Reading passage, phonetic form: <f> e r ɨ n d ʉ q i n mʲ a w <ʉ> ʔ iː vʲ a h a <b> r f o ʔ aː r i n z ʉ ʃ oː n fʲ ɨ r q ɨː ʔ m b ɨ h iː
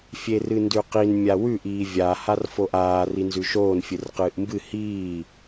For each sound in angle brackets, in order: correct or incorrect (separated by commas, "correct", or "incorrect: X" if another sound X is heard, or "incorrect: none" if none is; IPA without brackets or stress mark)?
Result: incorrect: fʲ, correct, incorrect: none